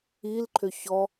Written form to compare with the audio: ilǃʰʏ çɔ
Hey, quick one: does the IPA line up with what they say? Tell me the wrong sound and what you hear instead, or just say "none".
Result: none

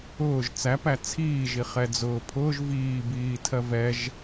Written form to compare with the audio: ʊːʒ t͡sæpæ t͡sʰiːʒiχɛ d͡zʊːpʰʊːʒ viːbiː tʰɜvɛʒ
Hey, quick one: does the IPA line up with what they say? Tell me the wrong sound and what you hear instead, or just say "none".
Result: none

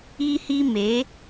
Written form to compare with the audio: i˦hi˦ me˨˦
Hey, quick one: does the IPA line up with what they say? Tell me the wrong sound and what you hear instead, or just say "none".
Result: none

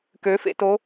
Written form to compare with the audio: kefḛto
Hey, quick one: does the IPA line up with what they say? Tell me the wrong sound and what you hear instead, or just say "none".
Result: e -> ø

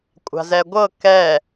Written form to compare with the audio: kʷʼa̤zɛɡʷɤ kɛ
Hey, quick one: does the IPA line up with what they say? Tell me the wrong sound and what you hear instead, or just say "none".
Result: none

